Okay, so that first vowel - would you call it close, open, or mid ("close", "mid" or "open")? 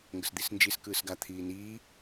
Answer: mid